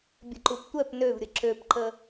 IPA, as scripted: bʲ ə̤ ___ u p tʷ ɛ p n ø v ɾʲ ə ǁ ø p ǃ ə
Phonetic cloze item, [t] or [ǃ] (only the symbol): ǃ